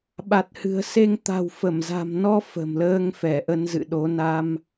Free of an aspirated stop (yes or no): yes